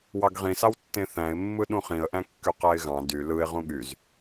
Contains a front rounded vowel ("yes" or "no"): yes